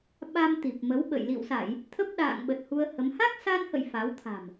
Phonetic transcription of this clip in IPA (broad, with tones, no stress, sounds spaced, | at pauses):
ɓ a˧ m t̪ i˨˩ p̚ m ə˨˦ w ɓ ə̰˧˨ j l ḭ˧˨ w s a˧˩˨ j | t̪ʰ ə˦˥ p̚ ɗ a̰ː˧˨ ŋ ɓ ə˨˩ t̚ h u˧ ə̯ h ə˨˦ m h a˦˥ k̚ s a˧ n h ə̰˧˨ j f a˨˦ w t̪ʰ a̤˨˩ m